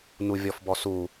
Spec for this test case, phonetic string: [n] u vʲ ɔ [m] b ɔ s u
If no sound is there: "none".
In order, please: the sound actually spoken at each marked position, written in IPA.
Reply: n, f

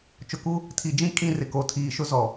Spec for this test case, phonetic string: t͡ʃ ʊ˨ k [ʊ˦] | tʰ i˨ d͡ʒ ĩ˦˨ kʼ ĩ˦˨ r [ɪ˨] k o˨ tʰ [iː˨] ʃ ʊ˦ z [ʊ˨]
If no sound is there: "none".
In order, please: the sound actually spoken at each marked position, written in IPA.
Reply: u˦, ɪ˨, iː˨, ɔ˨

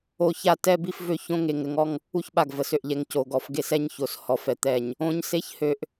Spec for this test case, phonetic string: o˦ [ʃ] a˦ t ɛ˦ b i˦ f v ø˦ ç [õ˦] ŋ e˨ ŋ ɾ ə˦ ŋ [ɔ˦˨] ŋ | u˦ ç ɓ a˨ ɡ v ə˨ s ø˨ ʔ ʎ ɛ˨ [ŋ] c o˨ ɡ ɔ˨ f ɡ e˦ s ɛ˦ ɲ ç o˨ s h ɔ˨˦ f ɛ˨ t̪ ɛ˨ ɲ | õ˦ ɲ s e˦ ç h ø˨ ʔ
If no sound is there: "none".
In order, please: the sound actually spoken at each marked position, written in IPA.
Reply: ç, õ˦, ɔ˦, ŋ

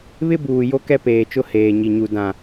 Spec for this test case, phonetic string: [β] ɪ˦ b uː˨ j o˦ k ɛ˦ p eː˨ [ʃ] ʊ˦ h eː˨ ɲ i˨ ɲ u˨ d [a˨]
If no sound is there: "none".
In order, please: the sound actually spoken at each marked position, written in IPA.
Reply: β, t͡ʃ, ã˨

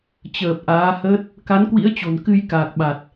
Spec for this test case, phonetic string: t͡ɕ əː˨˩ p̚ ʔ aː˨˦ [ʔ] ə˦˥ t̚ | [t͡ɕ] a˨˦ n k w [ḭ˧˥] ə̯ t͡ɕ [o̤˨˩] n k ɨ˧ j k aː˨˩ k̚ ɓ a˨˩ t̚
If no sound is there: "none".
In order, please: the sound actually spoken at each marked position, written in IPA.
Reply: h, k, ḭ˧˥, o̤˨˩

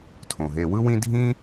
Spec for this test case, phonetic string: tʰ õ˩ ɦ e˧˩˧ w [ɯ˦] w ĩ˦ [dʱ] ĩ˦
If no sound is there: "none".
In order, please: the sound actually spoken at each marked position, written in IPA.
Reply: ɯ˦, dʱ

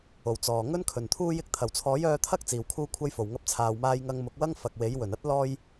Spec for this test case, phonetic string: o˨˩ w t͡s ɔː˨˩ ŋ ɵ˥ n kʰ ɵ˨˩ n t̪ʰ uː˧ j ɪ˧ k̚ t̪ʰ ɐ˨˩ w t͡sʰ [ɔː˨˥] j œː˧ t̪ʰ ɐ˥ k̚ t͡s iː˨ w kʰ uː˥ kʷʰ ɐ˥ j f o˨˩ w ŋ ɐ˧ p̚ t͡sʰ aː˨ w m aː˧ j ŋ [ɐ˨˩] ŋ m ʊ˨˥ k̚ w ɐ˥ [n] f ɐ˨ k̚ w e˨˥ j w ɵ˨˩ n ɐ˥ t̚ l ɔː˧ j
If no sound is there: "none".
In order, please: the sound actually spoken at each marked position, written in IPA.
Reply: ɔː˨˥, ɐ˧, ŋ

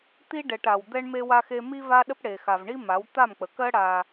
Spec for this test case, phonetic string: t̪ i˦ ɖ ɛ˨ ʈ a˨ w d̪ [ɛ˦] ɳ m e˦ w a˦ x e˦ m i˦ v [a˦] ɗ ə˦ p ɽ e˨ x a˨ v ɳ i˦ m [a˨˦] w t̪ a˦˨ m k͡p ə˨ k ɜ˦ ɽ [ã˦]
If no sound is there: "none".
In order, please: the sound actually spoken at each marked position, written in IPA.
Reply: ɛ˦, a˦, a˨˦, a˦

